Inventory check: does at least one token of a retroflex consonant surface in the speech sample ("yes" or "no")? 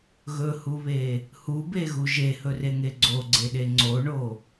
yes